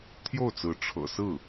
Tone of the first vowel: falling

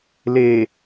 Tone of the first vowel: low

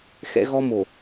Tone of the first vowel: high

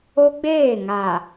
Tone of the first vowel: high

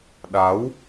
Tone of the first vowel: rising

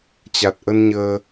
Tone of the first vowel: low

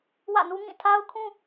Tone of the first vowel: falling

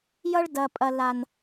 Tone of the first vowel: high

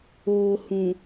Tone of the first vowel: low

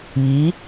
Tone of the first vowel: rising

